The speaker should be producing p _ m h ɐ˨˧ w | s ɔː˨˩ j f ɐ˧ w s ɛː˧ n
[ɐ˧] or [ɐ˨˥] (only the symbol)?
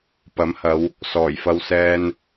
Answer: ɐ˨˥